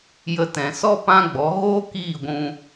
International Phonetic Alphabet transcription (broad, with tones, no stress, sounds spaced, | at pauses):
j ə˧ t ɛ̃˨ s ɔ˦ p ã˦ ɡ͡b ɔ˨˦ ɣ oː˦ k iː˦˨ ɡʷ ũ˧